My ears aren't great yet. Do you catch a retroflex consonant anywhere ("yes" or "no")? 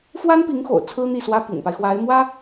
no